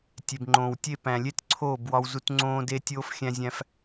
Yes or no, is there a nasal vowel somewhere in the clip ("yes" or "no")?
yes